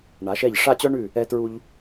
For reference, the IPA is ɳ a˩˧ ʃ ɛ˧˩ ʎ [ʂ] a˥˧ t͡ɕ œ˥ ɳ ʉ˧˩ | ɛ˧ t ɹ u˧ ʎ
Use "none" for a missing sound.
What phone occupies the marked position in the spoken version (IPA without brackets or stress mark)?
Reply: ʂ